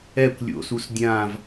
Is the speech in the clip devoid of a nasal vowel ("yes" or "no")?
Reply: no